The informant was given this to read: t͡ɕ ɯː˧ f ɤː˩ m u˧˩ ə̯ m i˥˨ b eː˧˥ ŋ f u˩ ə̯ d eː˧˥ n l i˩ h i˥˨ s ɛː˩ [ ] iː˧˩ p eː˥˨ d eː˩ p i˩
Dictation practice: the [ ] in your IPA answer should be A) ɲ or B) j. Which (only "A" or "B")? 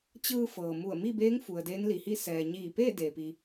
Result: A